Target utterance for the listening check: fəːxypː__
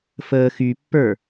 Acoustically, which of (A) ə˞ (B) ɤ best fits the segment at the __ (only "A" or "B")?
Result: A